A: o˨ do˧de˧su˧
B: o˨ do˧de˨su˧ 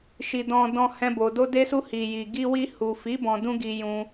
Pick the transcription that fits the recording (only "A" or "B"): A